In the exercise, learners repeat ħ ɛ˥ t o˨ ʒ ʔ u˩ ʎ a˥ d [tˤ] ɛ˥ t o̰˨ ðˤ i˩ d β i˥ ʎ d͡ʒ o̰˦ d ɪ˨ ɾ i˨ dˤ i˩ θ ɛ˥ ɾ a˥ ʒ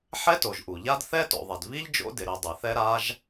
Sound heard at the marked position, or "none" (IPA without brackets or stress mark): θ